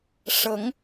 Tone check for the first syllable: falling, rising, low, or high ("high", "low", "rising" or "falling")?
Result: rising